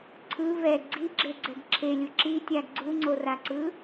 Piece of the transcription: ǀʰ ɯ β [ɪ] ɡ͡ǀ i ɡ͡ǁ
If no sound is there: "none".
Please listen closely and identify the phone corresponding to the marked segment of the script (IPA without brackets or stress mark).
ɛ